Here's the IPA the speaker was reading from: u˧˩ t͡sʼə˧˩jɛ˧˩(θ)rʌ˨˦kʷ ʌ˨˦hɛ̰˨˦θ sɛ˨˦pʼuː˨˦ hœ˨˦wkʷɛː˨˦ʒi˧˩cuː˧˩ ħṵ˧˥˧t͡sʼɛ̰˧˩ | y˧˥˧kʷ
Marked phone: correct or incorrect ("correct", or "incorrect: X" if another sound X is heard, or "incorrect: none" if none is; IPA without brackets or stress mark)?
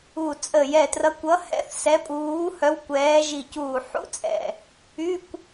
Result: incorrect: t